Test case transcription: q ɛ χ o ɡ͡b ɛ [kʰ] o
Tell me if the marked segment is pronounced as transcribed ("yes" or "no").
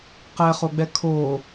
yes